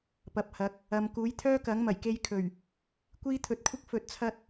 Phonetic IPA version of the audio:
pɐ˨p̚hɐ˨˥k̚ | ɐ˨m kuː˨˥jt̪ʰœː˥kɐ˨˥ŋmɐ˨˩j ke˧jkʰɵ˨˩ɥ | kʷiː˥t̪ʰɵ˧t̚kʷʰɪ˥k̚ fɵ˧t̚t͡sʰɐ˥t̚

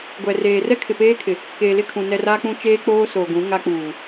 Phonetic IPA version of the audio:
ɡʷɛ˨reː˨ rɛ˦kʰɪ˨peː˦kʰɪ˨ | keː˨lɪ˦˨kʰũ˨ nɛ˨ ra˦k͡pũ˦ t͡ʃeː˦k͡poː˦so˨ɡũ˨˦ ŋa˦k͡puː˨

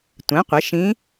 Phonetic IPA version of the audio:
tʷɛ̃˩˥qʷɪ˩˥ʃĩ˧˥

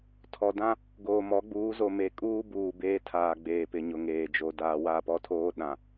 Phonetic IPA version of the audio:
tʰɔ˨ dã˦ | ɡoː˨mɔ˨˦ɡ͡buː˨˦ zo˨me˨kʼuː˦ buː˨ beː˦tʰaː˨ɡ͡beː˨pɪ˨ ɲʊ˨ŋeː˨d͡ʒo˨ daː˨wa˦˨pɔ˦tʰoː˦ ɗã˨

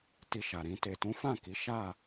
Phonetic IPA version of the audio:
ti˧ʃa˨ɾĩ˧ te˨tũ˨˦fã˦˨ki˨˦ ʃa˦˨

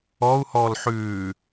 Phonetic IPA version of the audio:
ɔu̯ hɔlħʉː

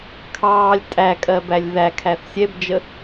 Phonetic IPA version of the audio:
kʰɑːlʲ tʼækʼɜbælʲ ðækʰæθ sʲɛbd͡ʒə

